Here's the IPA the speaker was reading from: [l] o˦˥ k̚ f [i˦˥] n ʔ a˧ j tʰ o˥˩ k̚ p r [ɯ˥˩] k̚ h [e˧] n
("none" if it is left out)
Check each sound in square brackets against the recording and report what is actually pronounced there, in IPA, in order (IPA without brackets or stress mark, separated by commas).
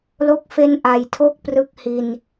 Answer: l, e˦˥, ɯ˦˥, i˧